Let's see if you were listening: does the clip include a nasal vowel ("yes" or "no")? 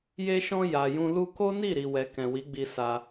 yes